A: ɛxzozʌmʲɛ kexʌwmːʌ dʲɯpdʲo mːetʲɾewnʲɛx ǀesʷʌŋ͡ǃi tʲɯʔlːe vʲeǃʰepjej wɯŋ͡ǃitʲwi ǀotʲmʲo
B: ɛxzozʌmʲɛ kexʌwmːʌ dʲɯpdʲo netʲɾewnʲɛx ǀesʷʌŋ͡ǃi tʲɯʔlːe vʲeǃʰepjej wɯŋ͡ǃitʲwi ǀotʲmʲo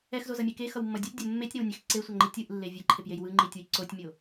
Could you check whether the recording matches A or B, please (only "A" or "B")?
A